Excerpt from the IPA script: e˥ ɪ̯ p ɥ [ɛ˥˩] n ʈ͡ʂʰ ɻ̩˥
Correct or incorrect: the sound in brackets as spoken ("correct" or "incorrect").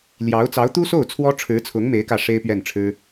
correct